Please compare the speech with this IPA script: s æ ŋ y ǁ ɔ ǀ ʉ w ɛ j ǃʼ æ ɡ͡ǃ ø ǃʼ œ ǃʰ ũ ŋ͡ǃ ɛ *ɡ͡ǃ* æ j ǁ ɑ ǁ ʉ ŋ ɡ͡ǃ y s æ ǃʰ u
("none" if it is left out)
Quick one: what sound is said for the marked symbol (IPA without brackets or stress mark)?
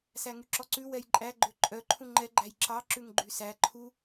ɡ͡ǃ